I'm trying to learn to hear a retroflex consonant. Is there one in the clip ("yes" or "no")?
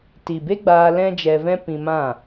no